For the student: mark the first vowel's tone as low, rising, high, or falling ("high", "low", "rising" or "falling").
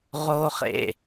high